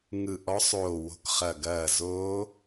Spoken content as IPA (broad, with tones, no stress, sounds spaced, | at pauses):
ŋ ɯ˧˩ ʔ ɔ˧˥ sˤ oː˧˩ w o̤˧˥ k χ ɐ˧˩ ɡ ɐː˧˩ z oː˧˥